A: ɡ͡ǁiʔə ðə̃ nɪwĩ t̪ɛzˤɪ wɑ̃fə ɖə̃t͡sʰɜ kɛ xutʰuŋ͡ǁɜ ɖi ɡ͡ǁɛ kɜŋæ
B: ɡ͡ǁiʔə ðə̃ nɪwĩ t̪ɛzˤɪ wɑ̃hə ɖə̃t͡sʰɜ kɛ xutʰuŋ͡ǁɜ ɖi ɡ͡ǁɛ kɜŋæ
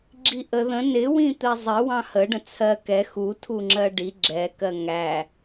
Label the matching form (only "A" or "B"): B